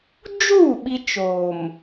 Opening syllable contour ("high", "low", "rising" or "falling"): falling